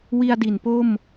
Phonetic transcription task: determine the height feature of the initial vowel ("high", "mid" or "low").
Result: high